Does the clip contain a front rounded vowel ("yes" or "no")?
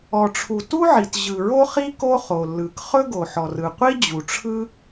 no